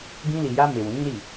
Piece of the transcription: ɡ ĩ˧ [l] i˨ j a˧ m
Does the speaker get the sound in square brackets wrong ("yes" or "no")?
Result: no